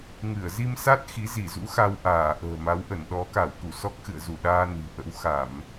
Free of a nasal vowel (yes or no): yes